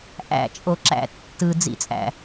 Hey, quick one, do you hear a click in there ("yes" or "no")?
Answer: yes